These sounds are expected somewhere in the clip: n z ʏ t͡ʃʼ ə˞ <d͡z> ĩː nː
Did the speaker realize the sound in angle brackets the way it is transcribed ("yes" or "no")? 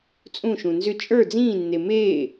yes